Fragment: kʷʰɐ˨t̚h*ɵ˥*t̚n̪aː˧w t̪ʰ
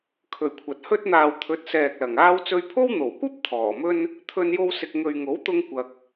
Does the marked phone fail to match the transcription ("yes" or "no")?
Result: no